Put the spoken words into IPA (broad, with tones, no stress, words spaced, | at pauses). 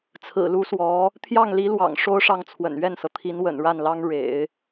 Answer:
t͡sʰɹ̩˨˩lu˧˥swɔ˧˥ | t̪ʰjɑ˥˩ŋli˧˥lwɑ̰˨˩ŋ ʂo˥ʊ̯ʂɑ˥˩ŋt͡sʰwə̰˨˩n ɥɛ˥˩nsɤ˩t̪ʰi˧˥nwə̰˨˩n ɻa˥˩nlɑ˥ŋ ɻḛ˨˩˦ɪ̯